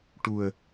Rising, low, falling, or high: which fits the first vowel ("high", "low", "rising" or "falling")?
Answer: low